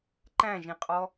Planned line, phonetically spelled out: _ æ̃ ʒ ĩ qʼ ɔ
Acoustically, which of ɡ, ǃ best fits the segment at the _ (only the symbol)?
ǃ